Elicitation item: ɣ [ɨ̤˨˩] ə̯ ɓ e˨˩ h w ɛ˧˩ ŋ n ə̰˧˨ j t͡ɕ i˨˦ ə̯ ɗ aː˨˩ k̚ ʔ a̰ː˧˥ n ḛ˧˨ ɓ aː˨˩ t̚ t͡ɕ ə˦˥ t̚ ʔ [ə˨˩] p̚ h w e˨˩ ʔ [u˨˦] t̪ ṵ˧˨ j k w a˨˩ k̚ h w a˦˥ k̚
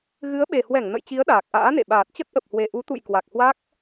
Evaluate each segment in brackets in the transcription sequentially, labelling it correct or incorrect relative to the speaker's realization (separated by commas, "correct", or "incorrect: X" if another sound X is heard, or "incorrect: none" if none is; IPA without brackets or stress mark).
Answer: incorrect: ɨ˨˦, correct, correct